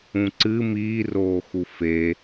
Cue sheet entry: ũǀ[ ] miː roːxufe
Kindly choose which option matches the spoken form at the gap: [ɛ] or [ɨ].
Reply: ɨ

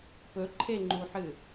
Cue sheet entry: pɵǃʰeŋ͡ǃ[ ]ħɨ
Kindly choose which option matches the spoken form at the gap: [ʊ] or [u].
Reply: u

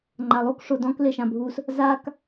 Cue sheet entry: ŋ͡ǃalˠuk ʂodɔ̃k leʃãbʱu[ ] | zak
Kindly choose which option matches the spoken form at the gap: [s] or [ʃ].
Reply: s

